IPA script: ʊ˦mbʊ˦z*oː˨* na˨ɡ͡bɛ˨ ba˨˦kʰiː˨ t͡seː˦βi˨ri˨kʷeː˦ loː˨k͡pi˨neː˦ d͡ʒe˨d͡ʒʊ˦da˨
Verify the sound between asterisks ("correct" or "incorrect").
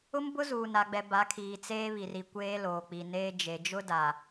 incorrect